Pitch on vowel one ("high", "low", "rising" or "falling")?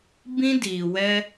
high